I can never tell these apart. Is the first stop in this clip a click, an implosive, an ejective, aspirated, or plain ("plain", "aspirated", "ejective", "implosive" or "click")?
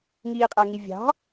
ejective